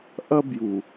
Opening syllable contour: high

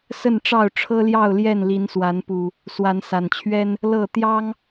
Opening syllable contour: falling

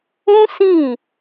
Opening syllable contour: high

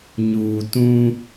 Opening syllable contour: low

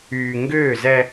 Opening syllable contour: low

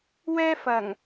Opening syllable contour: high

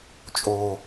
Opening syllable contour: low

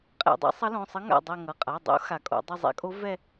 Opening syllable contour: falling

